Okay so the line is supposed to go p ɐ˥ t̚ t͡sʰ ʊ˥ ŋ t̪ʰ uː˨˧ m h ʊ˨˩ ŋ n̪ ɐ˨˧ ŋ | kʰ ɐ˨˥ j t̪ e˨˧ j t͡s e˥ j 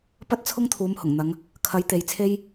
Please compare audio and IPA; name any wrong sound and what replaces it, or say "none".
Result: t͡s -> t͡sʰ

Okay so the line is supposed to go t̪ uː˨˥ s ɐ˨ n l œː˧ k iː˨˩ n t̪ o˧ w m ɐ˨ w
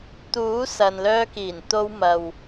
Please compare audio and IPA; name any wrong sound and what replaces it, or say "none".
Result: none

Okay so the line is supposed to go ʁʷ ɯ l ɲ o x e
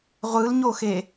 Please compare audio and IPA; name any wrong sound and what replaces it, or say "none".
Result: none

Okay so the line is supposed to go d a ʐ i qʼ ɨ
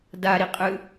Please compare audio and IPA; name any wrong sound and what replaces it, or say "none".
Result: ʐ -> ɾ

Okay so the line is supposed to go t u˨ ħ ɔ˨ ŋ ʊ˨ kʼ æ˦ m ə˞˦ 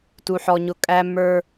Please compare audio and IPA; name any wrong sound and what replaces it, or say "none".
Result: ŋ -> ɲ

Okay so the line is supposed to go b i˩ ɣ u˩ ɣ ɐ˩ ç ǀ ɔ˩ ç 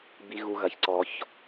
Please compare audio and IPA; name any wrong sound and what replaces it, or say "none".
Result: none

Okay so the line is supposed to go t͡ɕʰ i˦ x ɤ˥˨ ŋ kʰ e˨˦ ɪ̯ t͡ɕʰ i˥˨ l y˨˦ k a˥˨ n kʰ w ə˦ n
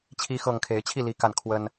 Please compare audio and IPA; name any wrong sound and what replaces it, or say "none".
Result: y˨˦ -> i˨˦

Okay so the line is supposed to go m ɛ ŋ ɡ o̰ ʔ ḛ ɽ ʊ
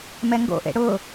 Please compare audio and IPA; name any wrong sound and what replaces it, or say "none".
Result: none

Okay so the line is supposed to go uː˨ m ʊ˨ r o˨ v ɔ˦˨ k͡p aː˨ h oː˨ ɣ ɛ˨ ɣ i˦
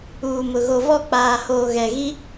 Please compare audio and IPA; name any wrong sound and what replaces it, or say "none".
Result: r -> ɣ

